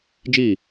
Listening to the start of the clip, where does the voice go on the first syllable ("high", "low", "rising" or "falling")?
falling